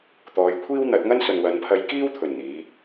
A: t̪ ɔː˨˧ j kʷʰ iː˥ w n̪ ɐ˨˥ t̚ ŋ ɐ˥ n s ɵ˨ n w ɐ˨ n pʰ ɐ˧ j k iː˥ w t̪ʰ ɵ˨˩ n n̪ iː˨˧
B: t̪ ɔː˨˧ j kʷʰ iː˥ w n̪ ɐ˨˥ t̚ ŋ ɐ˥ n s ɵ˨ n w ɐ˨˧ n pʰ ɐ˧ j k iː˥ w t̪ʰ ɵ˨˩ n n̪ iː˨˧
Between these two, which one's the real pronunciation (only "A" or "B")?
B